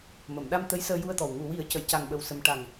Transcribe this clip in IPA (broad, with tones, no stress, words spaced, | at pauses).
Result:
mə˨˩˨mɗa˧m t̪ə˧˥jsəː˧ju˧ə̯t̪ɔ˨˩w ŋu˨˩˨wi˨˩˦ə̯ cə˨˩˨jca˨˩ŋɓə˨˩w sə˧m ʈa˨˩ŋ